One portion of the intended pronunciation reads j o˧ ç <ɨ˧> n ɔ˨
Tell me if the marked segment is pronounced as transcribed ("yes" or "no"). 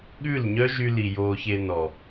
no